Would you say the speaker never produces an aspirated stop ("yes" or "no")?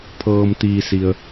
no